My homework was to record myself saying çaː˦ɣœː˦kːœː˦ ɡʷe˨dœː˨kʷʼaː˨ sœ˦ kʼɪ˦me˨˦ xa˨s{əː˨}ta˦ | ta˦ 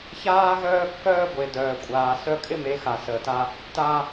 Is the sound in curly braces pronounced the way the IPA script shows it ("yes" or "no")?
yes